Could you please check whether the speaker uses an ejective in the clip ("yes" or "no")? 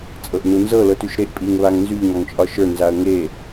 yes